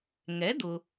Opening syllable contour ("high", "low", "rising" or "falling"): rising